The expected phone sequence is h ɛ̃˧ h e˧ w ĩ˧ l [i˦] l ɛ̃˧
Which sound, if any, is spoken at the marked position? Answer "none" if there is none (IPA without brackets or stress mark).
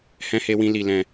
i˧